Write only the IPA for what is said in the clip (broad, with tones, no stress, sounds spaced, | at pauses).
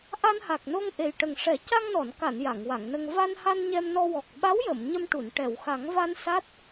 ʔ a˧ n h a˨˩ k̚ n o˧ ŋ ʔ e˨˩ j ʈ ə˨˩ ŋ ʂ ɛ˨˩˦ c a˧ ŋ n ɔ˨˩˨ n k a˨˩˨ n j a˨˩˨ ŋ w a˨˩˨ ŋ n ə˧ ŋ v a˧ n h a˧ n ɲ ɛ˧ m n ɔ˧ w ɔ˨˩ k̚ ɓ a˧˥ w j ə˨˩˨ m ɲ ə˧ m ʈ u˨˩˨ n ʈ ɛ˨˩˨ w x a˨˩˦ ŋ v a˧ n s a˦˥ t̚